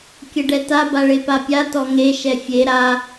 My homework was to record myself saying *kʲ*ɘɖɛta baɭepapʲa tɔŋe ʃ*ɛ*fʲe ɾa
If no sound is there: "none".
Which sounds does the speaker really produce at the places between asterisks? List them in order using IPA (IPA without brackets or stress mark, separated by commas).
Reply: kʲ, ɛ